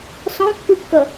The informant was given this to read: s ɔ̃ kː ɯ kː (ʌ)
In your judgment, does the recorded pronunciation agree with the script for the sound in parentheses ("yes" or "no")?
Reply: yes